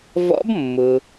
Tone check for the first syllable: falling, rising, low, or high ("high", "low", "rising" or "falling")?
rising